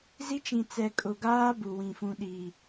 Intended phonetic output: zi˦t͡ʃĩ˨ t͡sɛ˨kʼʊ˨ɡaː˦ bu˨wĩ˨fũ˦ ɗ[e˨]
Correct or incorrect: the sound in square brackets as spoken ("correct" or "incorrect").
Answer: incorrect